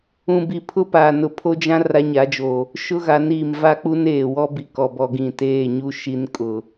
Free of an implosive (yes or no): yes